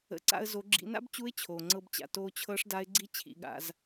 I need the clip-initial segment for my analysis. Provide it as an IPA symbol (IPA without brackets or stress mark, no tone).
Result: ə̰